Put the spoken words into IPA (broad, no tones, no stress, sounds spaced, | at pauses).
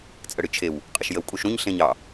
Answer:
t͡sʼ ə ɽ ɨ t͡ʃʰ e w | qʼ ə ʃ j ə w kʼ u ʃ ɾ ũ ɲ ɬ ẽ ɲ ɑ